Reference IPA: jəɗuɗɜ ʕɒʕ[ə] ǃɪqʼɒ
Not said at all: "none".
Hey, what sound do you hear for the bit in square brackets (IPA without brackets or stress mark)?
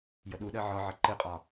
ə